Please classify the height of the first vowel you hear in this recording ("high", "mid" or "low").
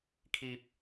high